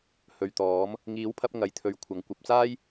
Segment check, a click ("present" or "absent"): absent